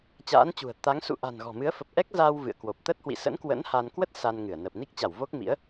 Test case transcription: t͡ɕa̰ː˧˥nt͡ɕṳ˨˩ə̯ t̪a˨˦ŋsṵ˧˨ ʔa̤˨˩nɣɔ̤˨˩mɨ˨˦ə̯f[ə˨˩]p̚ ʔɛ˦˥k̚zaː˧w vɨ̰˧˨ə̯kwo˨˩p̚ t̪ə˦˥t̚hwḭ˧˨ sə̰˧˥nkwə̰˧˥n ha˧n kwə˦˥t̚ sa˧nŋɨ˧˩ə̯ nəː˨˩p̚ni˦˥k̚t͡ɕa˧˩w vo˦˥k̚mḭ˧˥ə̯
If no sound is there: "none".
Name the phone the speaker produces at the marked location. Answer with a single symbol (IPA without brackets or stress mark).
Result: ə˨˩